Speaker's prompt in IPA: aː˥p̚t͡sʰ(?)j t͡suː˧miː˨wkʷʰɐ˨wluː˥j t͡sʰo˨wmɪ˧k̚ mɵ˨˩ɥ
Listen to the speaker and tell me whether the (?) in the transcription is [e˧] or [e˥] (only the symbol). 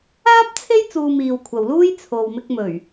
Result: e˥